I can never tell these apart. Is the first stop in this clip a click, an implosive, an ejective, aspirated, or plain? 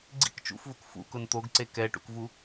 click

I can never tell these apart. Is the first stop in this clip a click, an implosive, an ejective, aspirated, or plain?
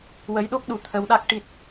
implosive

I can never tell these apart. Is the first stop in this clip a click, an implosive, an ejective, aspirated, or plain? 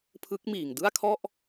aspirated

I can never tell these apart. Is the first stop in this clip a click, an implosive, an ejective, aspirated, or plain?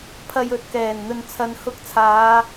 aspirated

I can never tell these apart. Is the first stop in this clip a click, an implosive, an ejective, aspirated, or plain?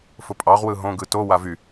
ejective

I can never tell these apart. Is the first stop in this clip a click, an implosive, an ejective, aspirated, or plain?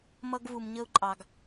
plain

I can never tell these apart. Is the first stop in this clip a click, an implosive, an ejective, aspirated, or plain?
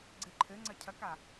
click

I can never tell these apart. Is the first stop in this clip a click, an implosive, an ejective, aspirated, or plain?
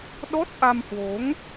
implosive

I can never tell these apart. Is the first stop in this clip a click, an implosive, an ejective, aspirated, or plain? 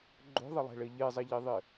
click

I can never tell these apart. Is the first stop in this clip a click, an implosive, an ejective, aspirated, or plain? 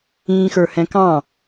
plain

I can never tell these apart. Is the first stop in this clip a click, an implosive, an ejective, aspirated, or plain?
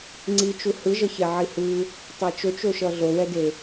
click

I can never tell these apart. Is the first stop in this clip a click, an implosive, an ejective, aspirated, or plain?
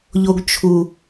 plain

